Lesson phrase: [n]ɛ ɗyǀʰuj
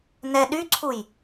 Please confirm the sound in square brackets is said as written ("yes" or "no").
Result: yes